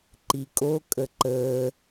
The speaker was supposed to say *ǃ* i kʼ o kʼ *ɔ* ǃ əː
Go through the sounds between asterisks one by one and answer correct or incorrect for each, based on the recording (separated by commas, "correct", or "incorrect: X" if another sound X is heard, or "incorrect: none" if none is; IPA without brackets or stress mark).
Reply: correct, incorrect: ə